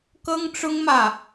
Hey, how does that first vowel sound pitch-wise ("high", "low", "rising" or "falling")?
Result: high